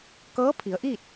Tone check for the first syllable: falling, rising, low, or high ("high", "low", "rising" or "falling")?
rising